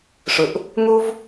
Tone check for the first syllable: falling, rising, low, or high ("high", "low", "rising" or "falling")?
low